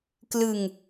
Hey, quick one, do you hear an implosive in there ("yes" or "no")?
no